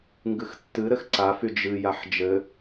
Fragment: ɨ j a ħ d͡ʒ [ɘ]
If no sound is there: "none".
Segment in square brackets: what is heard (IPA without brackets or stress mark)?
ɘ